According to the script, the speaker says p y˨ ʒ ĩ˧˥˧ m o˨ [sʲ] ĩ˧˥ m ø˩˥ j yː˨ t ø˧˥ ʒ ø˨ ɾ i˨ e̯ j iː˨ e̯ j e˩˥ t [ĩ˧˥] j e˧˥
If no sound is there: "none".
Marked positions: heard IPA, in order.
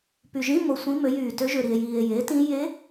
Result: sʷ, ĩ˧˥

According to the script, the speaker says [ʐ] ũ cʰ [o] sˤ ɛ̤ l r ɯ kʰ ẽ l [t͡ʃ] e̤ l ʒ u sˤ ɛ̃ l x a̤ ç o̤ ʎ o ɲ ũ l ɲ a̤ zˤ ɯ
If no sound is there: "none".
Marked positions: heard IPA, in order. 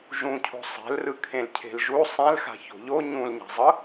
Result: ʒ, o̤, cʰ

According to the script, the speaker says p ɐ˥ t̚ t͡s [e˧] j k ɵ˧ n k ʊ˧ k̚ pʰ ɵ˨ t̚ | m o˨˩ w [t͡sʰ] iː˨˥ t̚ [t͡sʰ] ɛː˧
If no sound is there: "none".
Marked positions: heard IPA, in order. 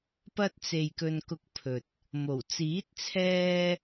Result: e˧, t͡s, t͡sʰ

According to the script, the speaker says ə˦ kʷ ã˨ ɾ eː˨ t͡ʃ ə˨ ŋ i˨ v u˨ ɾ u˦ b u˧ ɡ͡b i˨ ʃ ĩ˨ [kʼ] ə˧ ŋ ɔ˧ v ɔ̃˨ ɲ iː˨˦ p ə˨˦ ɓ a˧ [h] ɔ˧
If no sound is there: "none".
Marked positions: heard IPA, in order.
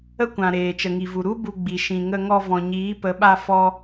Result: ŋ, f

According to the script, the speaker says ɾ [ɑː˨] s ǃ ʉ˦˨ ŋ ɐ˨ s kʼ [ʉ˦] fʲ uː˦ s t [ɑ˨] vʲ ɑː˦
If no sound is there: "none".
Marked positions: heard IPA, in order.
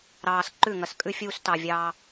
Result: ɑː˨, ʉ˦, ɑ˨

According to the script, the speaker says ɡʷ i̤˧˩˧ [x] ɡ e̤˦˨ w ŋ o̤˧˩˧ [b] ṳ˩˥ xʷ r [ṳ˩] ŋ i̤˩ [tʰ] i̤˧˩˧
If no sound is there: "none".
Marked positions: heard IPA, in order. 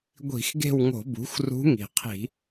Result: x, b, ṳ˧˥, qʰ

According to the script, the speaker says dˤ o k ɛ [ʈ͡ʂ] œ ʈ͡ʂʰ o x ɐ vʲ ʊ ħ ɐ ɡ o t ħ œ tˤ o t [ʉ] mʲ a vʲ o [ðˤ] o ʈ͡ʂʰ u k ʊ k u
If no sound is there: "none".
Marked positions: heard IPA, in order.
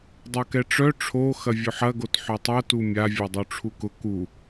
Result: ʈ͡ʂ, u, dˤ

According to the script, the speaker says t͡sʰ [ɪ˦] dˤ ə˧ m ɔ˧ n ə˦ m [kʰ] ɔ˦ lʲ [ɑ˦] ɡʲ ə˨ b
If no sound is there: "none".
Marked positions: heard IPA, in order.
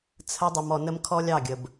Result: ə˦, kʰ, ɑ˦˨

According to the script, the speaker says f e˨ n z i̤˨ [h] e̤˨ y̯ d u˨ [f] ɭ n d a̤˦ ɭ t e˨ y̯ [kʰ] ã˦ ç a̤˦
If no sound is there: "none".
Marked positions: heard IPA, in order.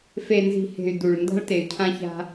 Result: h, none, cʰ

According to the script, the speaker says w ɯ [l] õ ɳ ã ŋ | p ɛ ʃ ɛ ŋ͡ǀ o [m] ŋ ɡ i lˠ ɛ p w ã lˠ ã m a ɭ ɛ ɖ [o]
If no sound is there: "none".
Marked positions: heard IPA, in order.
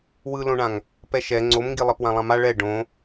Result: l, m, õ

